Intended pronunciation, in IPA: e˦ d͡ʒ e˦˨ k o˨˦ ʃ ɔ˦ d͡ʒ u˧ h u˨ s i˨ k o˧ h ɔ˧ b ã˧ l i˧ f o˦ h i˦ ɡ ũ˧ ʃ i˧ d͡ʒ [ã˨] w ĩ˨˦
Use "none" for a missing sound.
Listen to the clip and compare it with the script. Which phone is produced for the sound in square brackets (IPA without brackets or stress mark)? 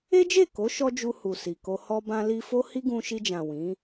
ã˨